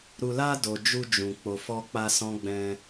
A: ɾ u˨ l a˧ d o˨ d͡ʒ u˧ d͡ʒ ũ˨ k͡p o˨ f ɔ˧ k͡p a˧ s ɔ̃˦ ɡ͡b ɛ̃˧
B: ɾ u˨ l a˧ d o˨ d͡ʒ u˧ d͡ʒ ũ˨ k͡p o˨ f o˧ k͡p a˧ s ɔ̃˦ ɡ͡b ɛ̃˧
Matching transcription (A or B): A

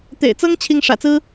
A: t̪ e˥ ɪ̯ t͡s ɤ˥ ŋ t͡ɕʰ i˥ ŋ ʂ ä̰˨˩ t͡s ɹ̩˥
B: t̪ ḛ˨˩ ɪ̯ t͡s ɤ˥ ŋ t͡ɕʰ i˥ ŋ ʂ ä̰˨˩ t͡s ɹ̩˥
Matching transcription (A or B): B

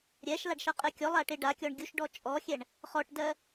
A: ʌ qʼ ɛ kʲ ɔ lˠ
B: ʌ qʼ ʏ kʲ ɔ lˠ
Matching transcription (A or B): A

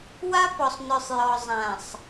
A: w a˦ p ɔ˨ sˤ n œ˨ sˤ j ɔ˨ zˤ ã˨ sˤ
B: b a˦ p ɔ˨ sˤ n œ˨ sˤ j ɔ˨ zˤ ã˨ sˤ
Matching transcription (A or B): A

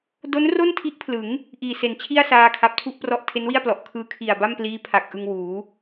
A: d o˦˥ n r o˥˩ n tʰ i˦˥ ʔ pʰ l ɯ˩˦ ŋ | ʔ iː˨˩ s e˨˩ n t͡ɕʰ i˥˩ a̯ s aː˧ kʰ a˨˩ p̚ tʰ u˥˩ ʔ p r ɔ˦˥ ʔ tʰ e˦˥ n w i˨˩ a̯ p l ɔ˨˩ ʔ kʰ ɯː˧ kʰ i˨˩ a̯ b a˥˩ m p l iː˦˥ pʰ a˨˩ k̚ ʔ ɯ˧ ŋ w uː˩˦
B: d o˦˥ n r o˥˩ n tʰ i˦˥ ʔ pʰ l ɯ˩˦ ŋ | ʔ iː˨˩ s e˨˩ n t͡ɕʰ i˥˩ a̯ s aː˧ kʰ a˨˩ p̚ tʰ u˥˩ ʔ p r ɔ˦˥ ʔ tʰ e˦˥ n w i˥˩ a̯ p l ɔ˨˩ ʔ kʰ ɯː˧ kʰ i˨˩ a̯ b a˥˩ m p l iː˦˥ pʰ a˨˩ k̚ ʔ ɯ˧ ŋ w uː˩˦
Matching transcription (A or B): B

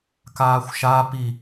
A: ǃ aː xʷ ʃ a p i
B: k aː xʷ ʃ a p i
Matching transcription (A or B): B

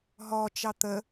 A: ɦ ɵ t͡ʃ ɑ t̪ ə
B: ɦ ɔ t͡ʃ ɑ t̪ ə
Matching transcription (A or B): B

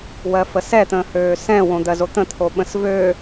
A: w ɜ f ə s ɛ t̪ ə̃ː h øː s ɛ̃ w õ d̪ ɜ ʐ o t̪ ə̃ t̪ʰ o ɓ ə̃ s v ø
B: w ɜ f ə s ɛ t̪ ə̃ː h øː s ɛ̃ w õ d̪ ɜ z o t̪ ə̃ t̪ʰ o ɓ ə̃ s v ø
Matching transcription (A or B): B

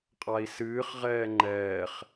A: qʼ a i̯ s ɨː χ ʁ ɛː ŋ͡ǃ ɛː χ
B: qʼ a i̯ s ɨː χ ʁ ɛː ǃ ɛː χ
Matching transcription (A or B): A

